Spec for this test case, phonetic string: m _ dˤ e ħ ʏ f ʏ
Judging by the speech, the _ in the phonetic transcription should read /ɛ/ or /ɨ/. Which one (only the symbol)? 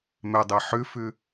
ɛ